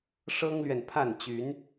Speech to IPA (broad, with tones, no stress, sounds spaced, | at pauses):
ʂ ɤ˦ ŋ l ɥ ɛ˨ n pʰ a˥˨ n t͡ɕ y˨˦ n